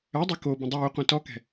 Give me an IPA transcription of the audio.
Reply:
œdˤe kobə̃ dˤuː qʷɛ̃tɔkɛ̤

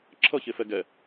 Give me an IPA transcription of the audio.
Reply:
ǁʰʌçefɛ ɡɛ

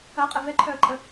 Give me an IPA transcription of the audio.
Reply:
ɐqʼɛ vɛǃʰœə̯ǃʼə

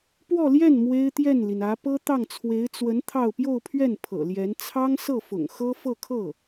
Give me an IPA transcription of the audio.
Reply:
pwɔ˥˧ljɛ˥˩n mwe˥ɪ̯t̪jɛ˥˩nli˩n ä˧˥ pɤ˥t̪ɑ˥˩ŋt͡sʰwe˧˥ɪ̯ t͡swə˧˥n t̪ʰɑ˥˧ʊ̯ pjo˥˧ʊ̯pʰɥɛ˥˩n pʰɤ̰˨˩ljɛ˧˥n t͡sʰɑ˥ŋsɤ˥˩fʊ̰˨˩ŋ xɤ˥fɤ˥˧kʰɤ˥˩

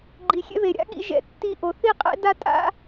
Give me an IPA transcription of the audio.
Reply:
ɡ͡ǃi˨xʲɛ̰˦βe˨ ɾʲa̰˦ɠḭ˧ ʒɛ̰˨tːi˧ ʔo˨θi˦˨qʼɛ̰˦da˦ tʼa̰˦

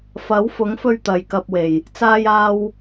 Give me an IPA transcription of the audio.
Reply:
fɐ˨˥wfʊ˨˥ŋfɵ˧ɥ t̪ɐ˨jkɐ˧p̚we˨˩j | t͡saː˧jaː˧w

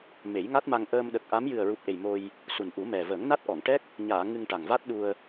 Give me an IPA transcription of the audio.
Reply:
me˨˩˦jŋa˦˥t̚ma˧ŋ ʔəː˧mɗə˨˩k̚ʔa˧˥m jɨ˨˩ə̯ɹu˨˩p̚ʔe˨˩j mo˧j | su˨˩nʔu˨˩˦mɛ˨˩ vəː˨˩˦ŋna˦˥t̚ʔɔ˨˩˨ŋʈɛ˦˥k̚ | ɲaː˨˩˨ ŋɨ˧ŋʈa˨˩ŋva˦˥t̚ɗu˧ə̯

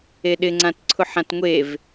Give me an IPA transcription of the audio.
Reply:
eɗɪŋ͡ǀãt ǀʰʊħãtŋʷev

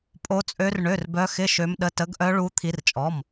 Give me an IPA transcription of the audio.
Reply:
pʼo˦˥t͡sʼø˦˥r ɳø˧˥˧rbœ˦˥ xɪ˧˥˧ ʃø˦˥mɗə˧˥˧ tə˦˥ɡʔœ˦˥ɭu˦˥ t̪ʰi˦˥rt͡ʃʼɔ˧˥˧m

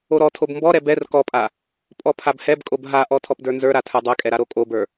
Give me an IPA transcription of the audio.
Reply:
oɾɔtʰob mbɔɾɛ bɛr kɔpʼa | pʼɔpʰabhɛbkʼob ɦaʔɔ tʰɔpdə˞nzə˞ɾa tʰə˞dˤɛkʼɛ ɾaɾokʼobə˞

